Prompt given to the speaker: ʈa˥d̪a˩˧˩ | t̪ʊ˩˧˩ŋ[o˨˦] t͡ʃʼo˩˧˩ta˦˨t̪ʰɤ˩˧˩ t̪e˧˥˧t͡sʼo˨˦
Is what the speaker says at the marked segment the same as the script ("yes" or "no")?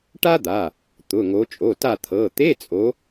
yes